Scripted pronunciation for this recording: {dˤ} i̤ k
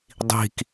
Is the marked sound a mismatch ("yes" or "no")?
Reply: no